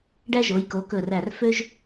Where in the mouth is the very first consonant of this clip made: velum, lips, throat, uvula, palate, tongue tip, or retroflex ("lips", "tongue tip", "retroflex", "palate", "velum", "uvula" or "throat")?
retroflex